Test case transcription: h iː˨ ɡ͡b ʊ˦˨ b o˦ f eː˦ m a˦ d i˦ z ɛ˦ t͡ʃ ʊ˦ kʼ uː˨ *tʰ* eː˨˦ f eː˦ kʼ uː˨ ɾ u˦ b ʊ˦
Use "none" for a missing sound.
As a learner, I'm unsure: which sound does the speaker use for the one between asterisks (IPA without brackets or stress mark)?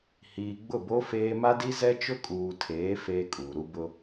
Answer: tʰ